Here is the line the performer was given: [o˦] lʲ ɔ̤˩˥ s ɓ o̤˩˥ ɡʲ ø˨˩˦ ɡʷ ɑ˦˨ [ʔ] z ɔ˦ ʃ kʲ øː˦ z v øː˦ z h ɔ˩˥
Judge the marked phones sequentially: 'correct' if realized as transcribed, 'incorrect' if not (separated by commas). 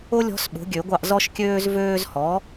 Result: correct, correct